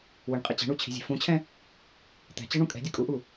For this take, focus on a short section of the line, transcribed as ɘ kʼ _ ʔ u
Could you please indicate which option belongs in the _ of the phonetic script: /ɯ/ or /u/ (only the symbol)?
u